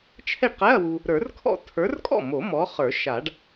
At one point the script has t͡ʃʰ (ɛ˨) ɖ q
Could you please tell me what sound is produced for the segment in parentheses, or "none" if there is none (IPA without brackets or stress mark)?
ɛ˥˩